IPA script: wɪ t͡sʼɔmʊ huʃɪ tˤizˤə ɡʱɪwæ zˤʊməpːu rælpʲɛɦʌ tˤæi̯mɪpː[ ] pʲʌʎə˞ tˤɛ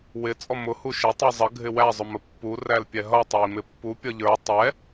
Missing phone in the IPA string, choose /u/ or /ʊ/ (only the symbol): u